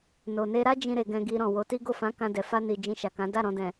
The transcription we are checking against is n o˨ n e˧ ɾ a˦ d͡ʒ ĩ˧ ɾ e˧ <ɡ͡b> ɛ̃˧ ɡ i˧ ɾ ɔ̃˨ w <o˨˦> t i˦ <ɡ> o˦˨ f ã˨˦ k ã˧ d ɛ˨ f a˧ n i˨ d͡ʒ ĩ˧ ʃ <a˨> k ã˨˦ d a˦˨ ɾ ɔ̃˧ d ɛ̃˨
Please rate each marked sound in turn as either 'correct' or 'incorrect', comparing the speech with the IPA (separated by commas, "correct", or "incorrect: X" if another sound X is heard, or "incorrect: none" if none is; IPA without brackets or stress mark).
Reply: incorrect: ɡ, correct, correct, correct